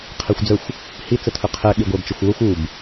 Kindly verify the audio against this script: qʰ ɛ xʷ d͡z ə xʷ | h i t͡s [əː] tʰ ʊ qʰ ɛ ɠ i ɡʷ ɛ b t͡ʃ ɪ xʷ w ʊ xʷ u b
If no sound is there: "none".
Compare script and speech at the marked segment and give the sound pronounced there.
ə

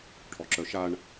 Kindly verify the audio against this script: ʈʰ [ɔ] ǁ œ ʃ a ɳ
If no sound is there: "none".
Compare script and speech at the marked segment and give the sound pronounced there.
ɔ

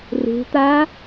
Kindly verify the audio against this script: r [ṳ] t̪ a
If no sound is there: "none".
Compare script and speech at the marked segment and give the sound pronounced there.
ṳ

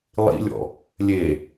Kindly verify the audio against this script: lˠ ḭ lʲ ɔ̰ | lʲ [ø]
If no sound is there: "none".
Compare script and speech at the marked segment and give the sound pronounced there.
e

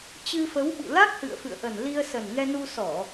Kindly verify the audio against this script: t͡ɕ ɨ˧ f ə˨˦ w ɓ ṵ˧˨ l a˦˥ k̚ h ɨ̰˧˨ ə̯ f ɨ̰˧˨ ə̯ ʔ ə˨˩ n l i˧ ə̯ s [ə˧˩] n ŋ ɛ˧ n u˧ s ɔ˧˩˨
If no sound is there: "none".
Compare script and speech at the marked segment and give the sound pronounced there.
ə˨˩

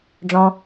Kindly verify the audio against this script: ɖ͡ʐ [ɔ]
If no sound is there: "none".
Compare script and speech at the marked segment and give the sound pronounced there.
ɔ̃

